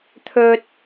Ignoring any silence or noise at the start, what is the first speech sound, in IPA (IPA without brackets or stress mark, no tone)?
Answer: t̪ʰ